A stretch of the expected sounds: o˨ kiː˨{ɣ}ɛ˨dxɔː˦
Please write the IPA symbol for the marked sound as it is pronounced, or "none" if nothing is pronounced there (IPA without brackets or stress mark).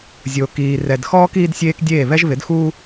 r